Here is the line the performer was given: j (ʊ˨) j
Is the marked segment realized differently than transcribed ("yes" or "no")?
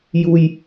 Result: yes